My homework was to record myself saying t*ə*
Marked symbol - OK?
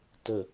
yes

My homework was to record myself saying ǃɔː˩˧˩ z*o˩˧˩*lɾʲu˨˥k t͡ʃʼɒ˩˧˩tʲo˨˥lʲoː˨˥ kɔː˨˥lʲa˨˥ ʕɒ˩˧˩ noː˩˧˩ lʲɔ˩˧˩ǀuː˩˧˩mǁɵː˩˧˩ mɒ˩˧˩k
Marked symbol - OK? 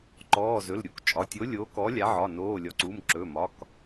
no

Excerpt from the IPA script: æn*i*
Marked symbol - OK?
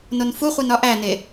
no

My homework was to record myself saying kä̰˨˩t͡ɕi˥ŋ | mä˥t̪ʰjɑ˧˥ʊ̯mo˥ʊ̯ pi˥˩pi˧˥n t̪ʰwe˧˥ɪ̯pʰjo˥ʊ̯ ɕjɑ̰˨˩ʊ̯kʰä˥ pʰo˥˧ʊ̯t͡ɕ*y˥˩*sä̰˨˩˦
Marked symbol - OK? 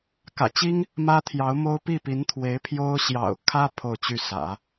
yes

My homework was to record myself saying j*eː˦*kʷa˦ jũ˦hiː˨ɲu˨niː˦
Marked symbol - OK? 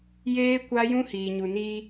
yes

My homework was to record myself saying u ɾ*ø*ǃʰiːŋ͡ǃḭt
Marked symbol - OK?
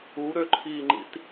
yes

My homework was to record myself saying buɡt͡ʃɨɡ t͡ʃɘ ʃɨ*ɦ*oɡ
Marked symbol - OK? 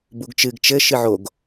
no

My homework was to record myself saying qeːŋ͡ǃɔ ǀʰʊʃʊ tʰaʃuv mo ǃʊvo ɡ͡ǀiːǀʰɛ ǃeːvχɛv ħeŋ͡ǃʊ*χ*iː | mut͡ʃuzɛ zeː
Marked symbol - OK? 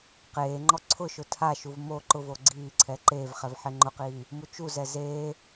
no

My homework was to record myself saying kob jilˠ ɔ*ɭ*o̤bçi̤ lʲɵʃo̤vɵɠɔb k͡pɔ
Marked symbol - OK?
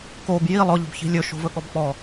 no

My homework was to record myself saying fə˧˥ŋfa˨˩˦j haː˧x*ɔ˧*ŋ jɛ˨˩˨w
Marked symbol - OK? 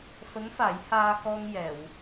yes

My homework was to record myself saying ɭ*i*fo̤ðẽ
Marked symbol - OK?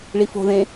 yes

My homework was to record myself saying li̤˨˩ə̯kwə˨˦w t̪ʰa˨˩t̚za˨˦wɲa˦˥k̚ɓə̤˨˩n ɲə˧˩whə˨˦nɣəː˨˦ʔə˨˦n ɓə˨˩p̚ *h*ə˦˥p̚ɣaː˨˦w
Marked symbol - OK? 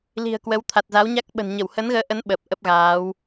no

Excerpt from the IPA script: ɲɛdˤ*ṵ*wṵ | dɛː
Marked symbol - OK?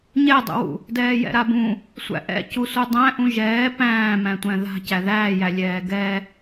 yes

